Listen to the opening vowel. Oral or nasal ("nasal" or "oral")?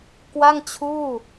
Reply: oral